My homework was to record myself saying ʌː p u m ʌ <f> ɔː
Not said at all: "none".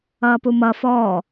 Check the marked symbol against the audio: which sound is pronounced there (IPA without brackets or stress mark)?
f